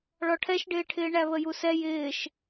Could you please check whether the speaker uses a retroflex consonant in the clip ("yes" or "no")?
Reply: yes